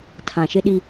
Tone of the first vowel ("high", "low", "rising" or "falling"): low